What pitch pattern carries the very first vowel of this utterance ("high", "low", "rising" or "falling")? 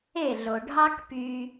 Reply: falling